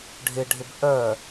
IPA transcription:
ɖʱ ɪ ɖʱ ɪ b ʔ œ

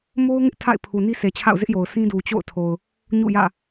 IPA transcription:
m o˦ ʊ̯ ŋ ɪ˦ ʔ tʰ a̰˦˨ ɪ̯ pʰ u˨ n i˦ s e˨ t͡ɕʰ a̰˦˨ ʊ̯ z ɪ˦ ʔ j o˨ ʊ̯ s ĩ˦ d u˨ t͡ɕ o̰˦˨ ʊ̯ tʰ o˨ ʊ̯ | ɲ ṵ˦˨ j ä̰˦˨

